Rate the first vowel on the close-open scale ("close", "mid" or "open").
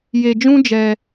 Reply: mid